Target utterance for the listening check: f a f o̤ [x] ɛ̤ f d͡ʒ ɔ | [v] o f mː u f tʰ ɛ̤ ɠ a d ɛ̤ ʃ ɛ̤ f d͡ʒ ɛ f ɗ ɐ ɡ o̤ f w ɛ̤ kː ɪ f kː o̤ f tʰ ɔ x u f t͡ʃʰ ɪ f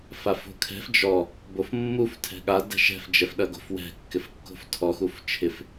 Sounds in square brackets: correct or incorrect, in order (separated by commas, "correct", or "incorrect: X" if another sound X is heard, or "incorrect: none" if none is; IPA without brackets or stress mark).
incorrect: kʰ, incorrect: b